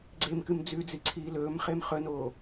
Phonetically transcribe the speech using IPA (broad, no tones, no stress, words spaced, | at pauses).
ɡ͡ǀemkɨm d͡zʉd͡zi ǀʰiːlɵːmχem χɵnoː